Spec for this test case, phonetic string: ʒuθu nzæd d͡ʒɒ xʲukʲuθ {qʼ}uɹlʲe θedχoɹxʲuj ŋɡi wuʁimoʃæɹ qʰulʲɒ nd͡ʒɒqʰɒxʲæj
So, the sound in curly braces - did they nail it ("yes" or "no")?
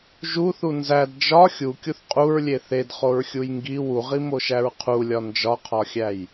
yes